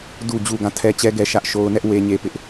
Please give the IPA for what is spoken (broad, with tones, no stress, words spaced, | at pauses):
du˨d͡ʑu˨ ɡã˦˨tʰɛ˦t͡ɕɛ˦ɡɛ˦ ʃä˦ʔʃo˦ʊ̯ nɛ˦ʔ we˦ɲe˦pɪ˦ʔ